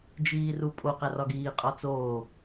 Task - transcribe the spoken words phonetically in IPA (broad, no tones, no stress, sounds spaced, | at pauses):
d͡ʒ iː r u pʼ o q æ r ɒ ɡ iː qʼ ɒ t͡s oː